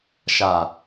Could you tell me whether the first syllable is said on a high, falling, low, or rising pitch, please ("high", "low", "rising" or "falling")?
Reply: low